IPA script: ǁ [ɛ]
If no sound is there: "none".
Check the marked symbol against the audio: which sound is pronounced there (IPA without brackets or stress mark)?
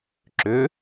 ʏ